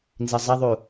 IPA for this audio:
n z i zˤ ɐ ðˤ u

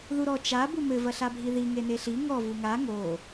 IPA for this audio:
ð u ɾ ɔ t͡ʃ a b u m ɘ v ɐ ɬ a bʱ i ð i ŋ e n e ɬ i ŋ ɔ v u ŋ a ŋ o

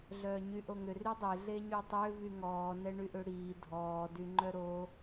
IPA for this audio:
ɮ œː ɲ y ʔ o ŋ ʏ r y dˤ e ɮ e ɲ y tˤ ø v y ŋ ɔː n ɛ ɳ y ʔ ʏ ɽ iː dʱ ɔː d y ŋ͡ǃ œ ɾ o

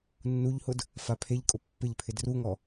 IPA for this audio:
nː u ʎ h ʊ d | f a pʰ e ʎ kʼ ʊ pː ɪ ʎ pʰ ɪ d r u ŋ ɔ

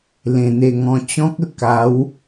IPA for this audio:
l ẽ˨˩ n̪ e˧ ŋ ɔ̃˧ t͡ɕ ɔ̃˦ k̚ ə˥˧ k a˨˦ w

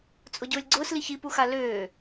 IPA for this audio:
t͡sʼ ʊ ɟ ʊː lʲ ɡ͡ǀ ʊː s l i ç i p u x a l øː

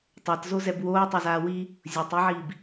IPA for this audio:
tˤ a t z o z ɛ b w oː tˤ o z aː w i | zʲ o tˤ i ʕ iː b

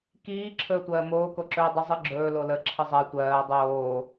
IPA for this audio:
k iː ǁʰ ɵː tʷ ɜː m oː k o ǁ ɵː dˤ ə zˤ ɯ ɡ͡ǁ ɵː l o l ə ǁʰ ɯ zˤ ɜ tʷ ɜː dˤ oː

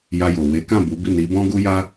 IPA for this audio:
j a˧ j o˨ w e˨˦ k ã˦˨ b u˨˦ b i˦˨ n i˨˦ b ɔ̃˦ ɡ u˦ j a˦

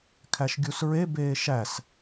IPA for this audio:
kʰ æ ʃ ɡʲ u s ɹ e b eː ʃ æ s

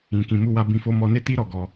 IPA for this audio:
ĩ˨ k ĩ˨ m u˧ w a˧ b ĩ˧ f o˦ m ɔ˧ n e˦ t i˦ ɾ ɔ˦˨ ɡ ɔ˧

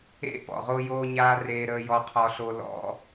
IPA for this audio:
ḛ˥ p ɔ̰˩ ʁ o˥ j oː˥ ɲ aː˥ r eː˥ ɾ əː˥ j ɔ˥ qʰ ɔ˥ ɬ o˥ l ɔ̰˥

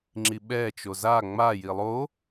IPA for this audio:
ŋ͡ǁ i ɓ ɛ t͡ʃ o z a ŋ͡m a j i lˠ o

